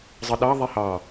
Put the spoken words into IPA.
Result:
zˤ ɯ ɗ ɑ ðˤ i h ɑ

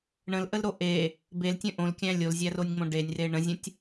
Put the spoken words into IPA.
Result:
ɳ ə̃ l ʔ ə l ɾ o ʔ e | b e l tʲ ə̃ ʔ õ l kʲ æ̃ lʲ o l zʲ æ r o nʲ ŋ͡m õ ɖ e nʲ r e ɳ ə̃ zʲ ə̃ tʲ

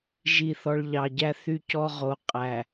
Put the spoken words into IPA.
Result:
ʒ i˦˨ θ ɔ˦ ɭ ʎ ɑ˨ ɟ æ˦ θ y˦ c ɔ˦ ʁ o˨ qʼ æ˨

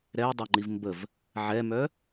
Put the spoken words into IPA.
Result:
ɾ ɛ j dˤ o ŋ͡ǃ i v m b ə v | ʕ ɛ m œ

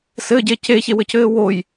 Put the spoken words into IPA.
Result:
s ɘ ɟ e c e ç e w ɘ c ɘː w o j

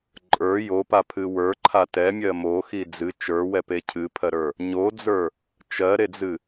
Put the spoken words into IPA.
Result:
ǃʼ ə˞ j o p a pʰ ɨ w ə˞ ǃʰ a t ɛ mʲ ɜ m o x i d͡z ɨ t͡ʃ ə˞ w ɛ p e cʰ ɨ pʰ ɜ ɾ ə˞ | ɲ o d͡z ə˞ | t͡ʃ ɜ ɾ e d͡z ɨ

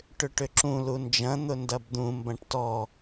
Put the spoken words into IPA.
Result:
ʈ ʏ ʈ ʏ ǁ ũ l u n d͡ʒ ɐ̃ n̪ ʊ n d ɐ b d̪ ũ m b ɐ̃ ʈ t ɔ

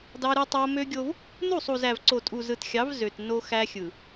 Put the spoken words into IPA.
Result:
d ɑ˦ ɾ ɯ˦ tˤ o˦ m ø˦ ɡʲ o˦ v | n u˦˨ sˤ u˨ z æ˨ v ǀ o˨ tʼ u˨ z ɯ˨ t xʲ ɑ˨˦ v z ø˨ t n o˦ x æ˦ xʲ ɯ˨

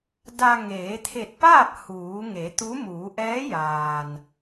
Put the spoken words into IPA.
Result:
d a˧ ŋ eː˩˧ t̪ʰ e˧˩ t̚ p aː˥˨ p̚ h uː˩˧ ŋ e˩˧ t̪ u˧˥ m uː˩˧ ʔ ɛː˧˥ j aː˩ n

